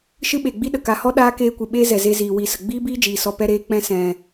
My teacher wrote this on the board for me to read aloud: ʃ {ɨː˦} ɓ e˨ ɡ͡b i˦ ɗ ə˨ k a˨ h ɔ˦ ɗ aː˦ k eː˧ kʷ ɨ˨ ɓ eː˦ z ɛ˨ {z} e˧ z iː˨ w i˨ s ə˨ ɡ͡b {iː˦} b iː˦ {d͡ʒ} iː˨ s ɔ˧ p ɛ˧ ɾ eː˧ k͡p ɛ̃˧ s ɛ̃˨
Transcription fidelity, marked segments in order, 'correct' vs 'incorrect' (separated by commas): incorrect, correct, correct, correct